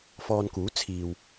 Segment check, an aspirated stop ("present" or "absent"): present